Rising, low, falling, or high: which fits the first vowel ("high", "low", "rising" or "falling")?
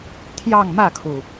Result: falling